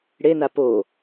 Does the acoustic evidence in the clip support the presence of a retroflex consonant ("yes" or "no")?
yes